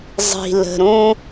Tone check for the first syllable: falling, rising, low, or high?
low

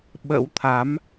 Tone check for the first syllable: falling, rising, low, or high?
rising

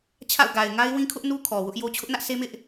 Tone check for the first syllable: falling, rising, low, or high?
falling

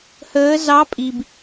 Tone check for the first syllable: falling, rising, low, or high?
rising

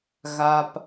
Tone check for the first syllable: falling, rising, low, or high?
low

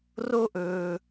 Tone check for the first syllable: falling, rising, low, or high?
high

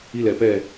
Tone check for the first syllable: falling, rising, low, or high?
falling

